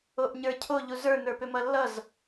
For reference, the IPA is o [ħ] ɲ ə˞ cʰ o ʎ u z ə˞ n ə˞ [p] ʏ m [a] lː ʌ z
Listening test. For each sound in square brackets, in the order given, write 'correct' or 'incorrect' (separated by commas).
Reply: incorrect, correct, incorrect